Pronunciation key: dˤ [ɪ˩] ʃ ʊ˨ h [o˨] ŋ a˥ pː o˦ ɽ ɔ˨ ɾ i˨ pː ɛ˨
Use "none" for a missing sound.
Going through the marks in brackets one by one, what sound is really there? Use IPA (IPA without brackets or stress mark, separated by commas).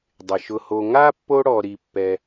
ɪ˩, o˨